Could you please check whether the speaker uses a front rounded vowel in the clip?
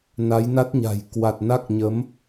no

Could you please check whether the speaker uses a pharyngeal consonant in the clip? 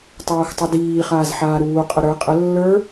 yes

